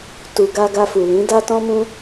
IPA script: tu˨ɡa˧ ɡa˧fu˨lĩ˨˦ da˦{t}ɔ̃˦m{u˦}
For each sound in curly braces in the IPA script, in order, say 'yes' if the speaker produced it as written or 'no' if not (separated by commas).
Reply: yes, no